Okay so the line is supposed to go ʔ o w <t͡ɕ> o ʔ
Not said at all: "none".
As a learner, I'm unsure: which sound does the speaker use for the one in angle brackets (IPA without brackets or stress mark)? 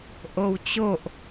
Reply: t͡ɕ